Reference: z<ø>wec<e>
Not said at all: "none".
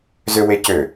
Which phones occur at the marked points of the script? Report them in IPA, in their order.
ø, ø

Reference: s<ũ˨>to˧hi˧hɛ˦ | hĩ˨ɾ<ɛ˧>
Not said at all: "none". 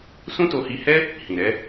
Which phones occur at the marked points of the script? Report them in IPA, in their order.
ũ˦, ɛ˨˦

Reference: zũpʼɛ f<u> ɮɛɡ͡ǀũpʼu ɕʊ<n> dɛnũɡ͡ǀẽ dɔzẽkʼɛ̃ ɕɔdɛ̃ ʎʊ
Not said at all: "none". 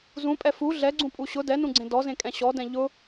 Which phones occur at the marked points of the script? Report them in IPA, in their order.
u, none

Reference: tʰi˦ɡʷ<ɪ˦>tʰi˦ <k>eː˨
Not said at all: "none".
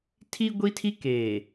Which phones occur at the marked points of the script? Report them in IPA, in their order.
i˦, k

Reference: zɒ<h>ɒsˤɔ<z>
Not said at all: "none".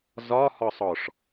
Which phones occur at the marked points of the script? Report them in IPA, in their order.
h, ʂ

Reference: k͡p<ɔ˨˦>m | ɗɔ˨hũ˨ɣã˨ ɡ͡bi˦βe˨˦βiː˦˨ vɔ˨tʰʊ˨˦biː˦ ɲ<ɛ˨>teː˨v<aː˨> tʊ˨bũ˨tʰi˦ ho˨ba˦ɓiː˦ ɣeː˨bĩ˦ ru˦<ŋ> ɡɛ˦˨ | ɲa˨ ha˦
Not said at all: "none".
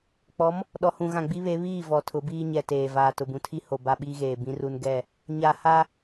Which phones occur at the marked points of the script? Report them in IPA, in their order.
ɔ˨˦, ɛ˨, aː˨, n

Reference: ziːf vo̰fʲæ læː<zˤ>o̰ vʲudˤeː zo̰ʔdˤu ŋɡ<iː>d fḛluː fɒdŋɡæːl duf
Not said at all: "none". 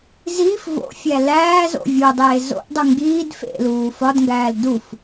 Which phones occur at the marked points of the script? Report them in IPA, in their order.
z, iː

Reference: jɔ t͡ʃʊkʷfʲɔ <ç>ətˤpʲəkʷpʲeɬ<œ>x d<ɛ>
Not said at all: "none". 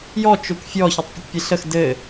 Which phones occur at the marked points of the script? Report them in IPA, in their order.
ç, ə, ɘ

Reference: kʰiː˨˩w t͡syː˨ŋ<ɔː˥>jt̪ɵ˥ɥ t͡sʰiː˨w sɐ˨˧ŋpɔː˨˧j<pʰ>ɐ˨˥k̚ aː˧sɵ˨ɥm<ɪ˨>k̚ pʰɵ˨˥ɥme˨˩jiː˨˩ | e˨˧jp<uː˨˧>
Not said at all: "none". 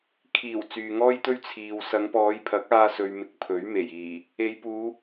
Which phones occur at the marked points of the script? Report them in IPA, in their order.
ɔː˥, pʰ, ɪ˨, uː˨˧

